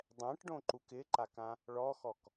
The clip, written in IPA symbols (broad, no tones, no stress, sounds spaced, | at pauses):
dˤ ɛ̃ ʈ ɖ õ ǃ u k ɪ ǃ a k ã | ɭ ɔ x ɔ k